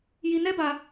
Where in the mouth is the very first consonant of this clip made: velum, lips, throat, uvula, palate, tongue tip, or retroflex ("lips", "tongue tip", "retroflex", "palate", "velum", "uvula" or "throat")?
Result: palate